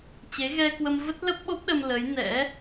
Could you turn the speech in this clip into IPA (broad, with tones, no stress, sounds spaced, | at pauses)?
t͡ɕ e˨˦ ɣ ɛ˧ k w ə˧ m v ə˦˥ t̚ l ə˦˥ p̚ ɓ o˦˥ p̚ ɗ ə˧ m l ə˨˦ j n ɛ̰˧˥